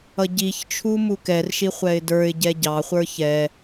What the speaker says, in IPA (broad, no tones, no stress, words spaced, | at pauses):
ʌɟiçt͡ʃʰu mukɛrʃi χʷɛɪ̯də˞ɪ̯ɟɛ ɟɑχʷə˞ çɛ